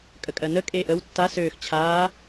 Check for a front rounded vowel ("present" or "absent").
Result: present